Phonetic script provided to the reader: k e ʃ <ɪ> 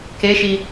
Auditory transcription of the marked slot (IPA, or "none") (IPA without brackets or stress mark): i